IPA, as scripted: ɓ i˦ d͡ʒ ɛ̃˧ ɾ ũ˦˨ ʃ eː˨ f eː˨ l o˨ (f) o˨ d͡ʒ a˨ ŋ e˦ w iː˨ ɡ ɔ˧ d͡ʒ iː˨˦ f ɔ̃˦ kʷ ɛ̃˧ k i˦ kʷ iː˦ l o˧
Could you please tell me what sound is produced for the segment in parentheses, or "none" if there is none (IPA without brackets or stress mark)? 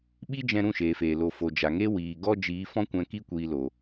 f